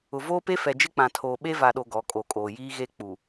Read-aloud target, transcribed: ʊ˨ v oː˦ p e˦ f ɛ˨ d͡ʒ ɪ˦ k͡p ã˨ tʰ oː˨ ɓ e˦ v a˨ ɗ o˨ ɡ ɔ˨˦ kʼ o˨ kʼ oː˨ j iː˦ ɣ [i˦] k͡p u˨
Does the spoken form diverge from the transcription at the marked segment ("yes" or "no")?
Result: yes